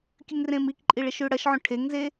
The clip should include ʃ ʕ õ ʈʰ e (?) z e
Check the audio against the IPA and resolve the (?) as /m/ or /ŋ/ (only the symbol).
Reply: ŋ